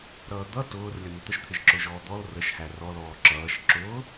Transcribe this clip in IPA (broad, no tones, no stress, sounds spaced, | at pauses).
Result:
ɾ ʌː d̪ ʌ t ʊː r lʲ ʌ n̪ ə t̪ ə ʃ t̪ʰ ɪ ʒ ǁ ʊ ʒ ɔː d̪ ɔ l r ə ʃ h æ r ɔ l ɔː ǁ ʌː ʃ ǁ ʊː